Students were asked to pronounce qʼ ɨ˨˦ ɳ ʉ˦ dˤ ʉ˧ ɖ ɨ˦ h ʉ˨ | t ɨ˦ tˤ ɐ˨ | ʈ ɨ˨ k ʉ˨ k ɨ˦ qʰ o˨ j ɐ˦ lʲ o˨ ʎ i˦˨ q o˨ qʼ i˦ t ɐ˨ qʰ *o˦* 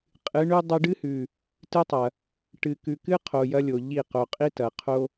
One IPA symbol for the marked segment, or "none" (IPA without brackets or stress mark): o˦